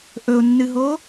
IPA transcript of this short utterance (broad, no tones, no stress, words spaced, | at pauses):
ʔɵʊ̯nːɨɦo